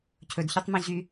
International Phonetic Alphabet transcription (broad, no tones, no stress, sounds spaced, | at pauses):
cʰ ɵ d ç y tˤ m õ ʑ y